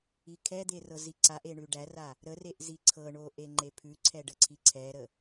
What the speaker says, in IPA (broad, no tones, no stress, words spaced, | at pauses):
ikʰɛd̪e rɤziǀaʔe ɳʉɖæra | ɾəreʔ ziǀʰɤɳo ʔeŋ͡ǃepʰʉǀʰɛ ɖəǀʰiǀʰɛɾə